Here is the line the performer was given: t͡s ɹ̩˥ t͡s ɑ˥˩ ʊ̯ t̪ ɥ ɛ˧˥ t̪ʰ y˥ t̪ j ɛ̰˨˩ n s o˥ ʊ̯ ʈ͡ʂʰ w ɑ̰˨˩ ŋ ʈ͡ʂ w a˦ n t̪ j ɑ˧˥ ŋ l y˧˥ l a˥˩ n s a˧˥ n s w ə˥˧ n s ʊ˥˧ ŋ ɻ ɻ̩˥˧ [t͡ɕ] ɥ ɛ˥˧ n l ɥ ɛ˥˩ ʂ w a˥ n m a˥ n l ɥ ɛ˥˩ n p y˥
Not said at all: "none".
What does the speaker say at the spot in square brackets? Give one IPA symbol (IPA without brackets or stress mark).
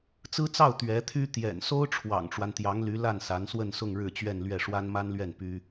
t͡ɕ